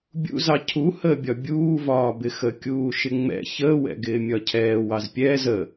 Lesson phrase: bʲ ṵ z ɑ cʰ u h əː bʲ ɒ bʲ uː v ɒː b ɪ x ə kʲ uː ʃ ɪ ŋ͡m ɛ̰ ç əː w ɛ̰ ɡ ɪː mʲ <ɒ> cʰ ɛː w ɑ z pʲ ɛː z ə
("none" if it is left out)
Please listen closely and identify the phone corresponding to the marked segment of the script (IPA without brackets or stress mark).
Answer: ɒ